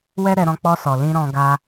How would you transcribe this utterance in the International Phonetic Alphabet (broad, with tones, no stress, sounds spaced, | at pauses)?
w ɛ˦ ɾ ɛ˧ ɾ ɔ̃˧ k͡p ɔ˧ s ɔ˨ l ĩ˧ ɾ ɔ̃˧ ɡ a˧